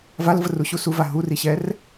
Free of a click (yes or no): yes